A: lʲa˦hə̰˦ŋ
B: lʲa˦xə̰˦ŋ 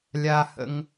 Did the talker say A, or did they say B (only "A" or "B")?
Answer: A